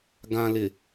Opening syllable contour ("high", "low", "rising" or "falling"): low